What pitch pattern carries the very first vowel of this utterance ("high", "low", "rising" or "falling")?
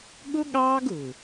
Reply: high